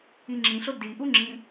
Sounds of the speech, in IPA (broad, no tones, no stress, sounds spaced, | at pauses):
i ŋ͡ǁ ĩ ɬ o d i ʔ u ŋ͡ǁ ĩ